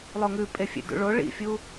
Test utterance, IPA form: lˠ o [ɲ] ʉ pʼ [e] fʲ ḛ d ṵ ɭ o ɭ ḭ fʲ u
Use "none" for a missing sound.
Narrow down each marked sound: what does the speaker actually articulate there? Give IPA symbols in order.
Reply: ŋ, e

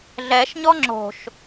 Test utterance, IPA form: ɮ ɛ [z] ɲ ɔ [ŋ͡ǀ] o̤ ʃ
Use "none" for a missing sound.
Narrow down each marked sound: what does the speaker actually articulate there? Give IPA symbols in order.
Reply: ʃ, ŋ͡ǁ

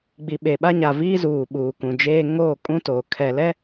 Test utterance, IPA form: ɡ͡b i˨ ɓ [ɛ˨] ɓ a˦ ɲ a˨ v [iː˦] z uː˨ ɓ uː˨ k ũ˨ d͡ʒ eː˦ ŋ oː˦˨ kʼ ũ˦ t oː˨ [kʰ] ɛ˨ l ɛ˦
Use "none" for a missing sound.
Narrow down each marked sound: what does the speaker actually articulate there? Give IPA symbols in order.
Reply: e˨, iː˦, kʰ

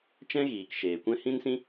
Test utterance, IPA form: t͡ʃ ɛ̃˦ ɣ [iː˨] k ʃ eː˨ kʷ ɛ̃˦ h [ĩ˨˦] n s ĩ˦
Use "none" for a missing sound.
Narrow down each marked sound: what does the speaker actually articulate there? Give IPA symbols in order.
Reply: iː˨, ĩ˦

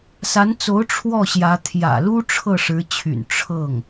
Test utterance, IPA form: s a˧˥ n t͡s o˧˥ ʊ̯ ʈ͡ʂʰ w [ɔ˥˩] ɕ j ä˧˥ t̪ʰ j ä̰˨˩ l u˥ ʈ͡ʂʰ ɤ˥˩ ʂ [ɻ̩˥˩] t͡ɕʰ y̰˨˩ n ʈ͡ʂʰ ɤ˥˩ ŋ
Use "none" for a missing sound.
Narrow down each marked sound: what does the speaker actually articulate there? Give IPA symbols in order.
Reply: ɔ˥˩, ɻ̩˧˥

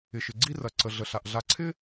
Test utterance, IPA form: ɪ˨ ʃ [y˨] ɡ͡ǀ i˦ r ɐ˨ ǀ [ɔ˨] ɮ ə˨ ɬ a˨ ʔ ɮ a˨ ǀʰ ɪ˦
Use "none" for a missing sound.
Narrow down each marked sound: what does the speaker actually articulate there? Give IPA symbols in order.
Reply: ɪ˨, ə˨

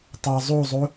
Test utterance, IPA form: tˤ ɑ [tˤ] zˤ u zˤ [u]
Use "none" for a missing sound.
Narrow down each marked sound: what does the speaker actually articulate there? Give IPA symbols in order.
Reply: none, u

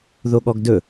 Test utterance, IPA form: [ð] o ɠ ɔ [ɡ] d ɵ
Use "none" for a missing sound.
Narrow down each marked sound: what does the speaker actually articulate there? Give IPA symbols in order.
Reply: ð, ɡ

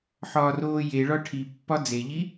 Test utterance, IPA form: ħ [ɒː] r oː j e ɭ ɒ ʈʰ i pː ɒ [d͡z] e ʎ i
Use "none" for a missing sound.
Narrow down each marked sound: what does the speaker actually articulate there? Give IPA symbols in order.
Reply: ɒː, d͡z

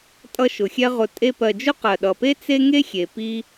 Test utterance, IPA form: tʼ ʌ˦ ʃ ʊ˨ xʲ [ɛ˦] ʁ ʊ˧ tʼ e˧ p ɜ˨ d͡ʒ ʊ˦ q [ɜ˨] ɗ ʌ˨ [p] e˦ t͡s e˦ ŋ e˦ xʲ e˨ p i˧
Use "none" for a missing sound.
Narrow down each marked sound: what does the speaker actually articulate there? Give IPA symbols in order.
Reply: ɛ˦, ɜ˨, p

